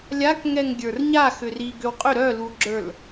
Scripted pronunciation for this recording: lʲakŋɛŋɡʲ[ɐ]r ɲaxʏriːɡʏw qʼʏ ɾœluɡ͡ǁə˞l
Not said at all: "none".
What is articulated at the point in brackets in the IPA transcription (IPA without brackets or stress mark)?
ə˞